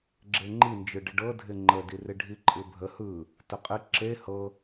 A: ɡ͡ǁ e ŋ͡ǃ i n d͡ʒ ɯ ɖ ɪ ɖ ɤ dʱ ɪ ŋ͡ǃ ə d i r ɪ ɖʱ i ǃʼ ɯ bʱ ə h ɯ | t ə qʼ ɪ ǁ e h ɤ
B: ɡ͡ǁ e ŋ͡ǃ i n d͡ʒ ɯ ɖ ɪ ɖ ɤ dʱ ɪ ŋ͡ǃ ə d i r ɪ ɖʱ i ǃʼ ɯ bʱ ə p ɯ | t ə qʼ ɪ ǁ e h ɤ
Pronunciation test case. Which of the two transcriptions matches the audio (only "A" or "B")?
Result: A